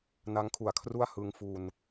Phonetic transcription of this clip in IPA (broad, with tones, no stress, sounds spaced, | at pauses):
n a˦˥ ŋ kʰ u˩˦ a̯ kʰ r u˥˩ a̯ h ɯ˧ ŋ f u˧ n